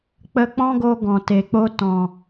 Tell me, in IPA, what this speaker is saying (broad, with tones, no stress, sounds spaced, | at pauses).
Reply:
k͡p ə˧ k͡p ɔ̃˦ ɡ o˧ ɡ ɔ̃˨ t e˨ k͡p o˧ t ɔ̃˨